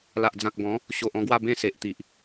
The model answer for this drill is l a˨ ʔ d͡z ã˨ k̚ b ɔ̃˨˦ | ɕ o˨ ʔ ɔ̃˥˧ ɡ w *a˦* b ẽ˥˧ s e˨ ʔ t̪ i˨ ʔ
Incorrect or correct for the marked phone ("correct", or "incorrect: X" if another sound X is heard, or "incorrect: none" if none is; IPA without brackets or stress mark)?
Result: incorrect: a˥˧